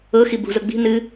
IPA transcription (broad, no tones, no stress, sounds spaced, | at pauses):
ɤ x i b ṳ z ɤ ɡ͡b i̤ n ɨ